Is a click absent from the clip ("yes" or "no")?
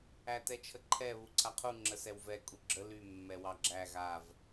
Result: no